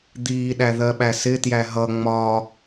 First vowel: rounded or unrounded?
unrounded